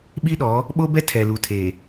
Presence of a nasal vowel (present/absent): absent